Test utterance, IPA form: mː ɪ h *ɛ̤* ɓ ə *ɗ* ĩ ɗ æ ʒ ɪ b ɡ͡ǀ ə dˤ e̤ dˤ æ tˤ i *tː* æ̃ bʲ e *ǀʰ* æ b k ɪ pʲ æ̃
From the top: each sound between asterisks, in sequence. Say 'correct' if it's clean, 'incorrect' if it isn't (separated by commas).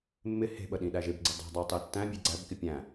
incorrect, correct, correct, incorrect